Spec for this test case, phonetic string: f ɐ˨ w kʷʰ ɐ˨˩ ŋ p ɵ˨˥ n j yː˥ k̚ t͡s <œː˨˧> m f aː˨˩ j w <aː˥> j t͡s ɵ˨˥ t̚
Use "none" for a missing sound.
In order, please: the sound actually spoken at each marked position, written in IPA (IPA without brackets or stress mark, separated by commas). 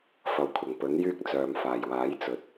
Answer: œː˨, aː˨˥